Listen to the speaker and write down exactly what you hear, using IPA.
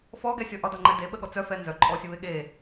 fɔɡɛsʲɔ ʔɒdɒŋ͡ǃɛ deɓəɠɔ t͡sœfɛ nzœǃʼɔsʲəβe ɠe

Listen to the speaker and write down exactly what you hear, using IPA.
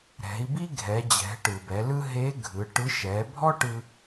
ɾɛ̤˩˧i̯bi˥ɡʱɛ˩˧d͡ʑɛ̤˩˧ ʈɯ˩bɛ˩˧lɯ˥ ɦe˧˥ ɡʱɯ˩˧ʈɯ˧˥ ʃɛ˩˧bʱɔ˥ʈɯ˧

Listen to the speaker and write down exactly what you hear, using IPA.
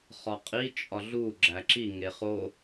χɒqʼi t͡ʃʼɒɮu ɡ͡ǁæǁi ŋeχo

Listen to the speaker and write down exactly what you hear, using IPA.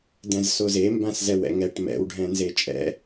dɛ̃zsoze mbãszɛwɛ̰ŋɛʈ mɛ̰w ɖʱɛ̃nzet͡ʃʼɛ̰

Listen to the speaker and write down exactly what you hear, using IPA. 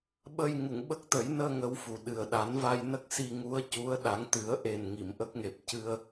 ɓə˧j ŋu˨˩˨ŋɓə˦˥k̚t̪ə˨˩˦jnəː˧ ŋə˧˥wfu˨˩ɗɨ˨˩ə̯ ɗa˨˩˦nva˧jnə˦˥k̚ si˧ŋu˧˥ə̯cu˧˥ə̯ ɗa˨˩˦ŋt̪ɨ˨˩˦ə̯ʔe˨˩n ŋi˨˩˨mʔə˦˥k̚ ŋe˨˩p̚cɨ˧ə̯

